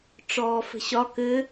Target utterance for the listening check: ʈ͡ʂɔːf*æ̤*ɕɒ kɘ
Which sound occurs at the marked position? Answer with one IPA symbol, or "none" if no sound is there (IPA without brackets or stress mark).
ə̤